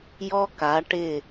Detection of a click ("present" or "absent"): absent